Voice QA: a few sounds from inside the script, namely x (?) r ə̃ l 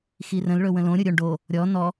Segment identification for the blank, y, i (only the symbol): i